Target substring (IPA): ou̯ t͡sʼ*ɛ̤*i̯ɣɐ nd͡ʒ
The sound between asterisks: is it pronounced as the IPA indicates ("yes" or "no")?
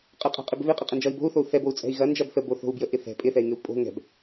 yes